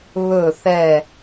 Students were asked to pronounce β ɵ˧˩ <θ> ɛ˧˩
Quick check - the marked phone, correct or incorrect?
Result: correct